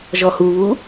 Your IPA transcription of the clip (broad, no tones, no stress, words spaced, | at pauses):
ʒɔhuβu